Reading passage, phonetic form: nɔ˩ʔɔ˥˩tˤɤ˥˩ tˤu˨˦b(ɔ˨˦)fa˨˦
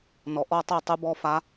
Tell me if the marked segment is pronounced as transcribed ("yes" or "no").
yes